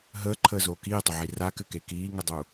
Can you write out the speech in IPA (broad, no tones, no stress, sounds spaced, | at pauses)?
ɦ əː ǃʰ əː z oː k iː tˤ ə ʕ i r a k ɘ k e k iː ŋ ə dˤ u